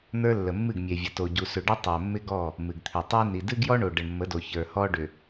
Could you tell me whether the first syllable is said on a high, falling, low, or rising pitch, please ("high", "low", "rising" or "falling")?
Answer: high